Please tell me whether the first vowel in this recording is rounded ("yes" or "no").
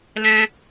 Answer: no